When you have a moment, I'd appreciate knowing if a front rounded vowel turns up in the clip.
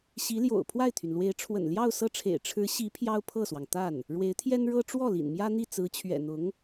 yes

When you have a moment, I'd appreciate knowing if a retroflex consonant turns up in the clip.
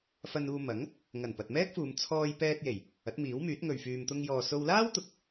no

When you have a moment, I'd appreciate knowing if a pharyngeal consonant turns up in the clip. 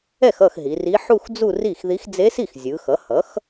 yes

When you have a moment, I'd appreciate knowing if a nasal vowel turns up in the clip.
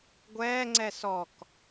no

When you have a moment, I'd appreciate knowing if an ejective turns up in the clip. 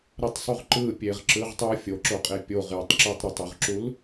yes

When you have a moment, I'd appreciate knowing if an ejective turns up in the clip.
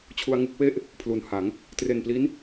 no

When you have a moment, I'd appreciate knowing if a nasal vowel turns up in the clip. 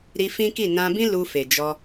yes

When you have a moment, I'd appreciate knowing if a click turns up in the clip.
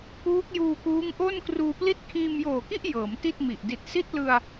no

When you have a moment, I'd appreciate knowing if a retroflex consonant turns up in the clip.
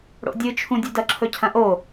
yes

